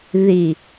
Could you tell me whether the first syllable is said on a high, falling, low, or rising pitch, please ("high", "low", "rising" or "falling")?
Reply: low